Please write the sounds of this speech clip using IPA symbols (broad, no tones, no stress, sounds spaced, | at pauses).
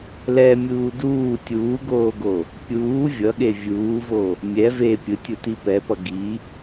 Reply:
l ɛ mʲ uː d uː tʲ uː ɡ oː ɡ o | pʲ uː vʲ ʌ ɠ e vʲ uː v o | mʲ ɛ v e pʲ ɯ tʲ u t i p ɛ p ʌ ɡ i